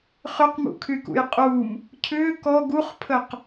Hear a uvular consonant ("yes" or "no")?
yes